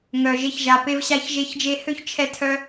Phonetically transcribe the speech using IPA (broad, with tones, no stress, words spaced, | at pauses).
ŋœ˨ʒe˧çʒa˨pe˧v ɕa˧çʒe˧ç d͡ʒe˧hø˦çt͡ʃʰɛ˧tʰœ˧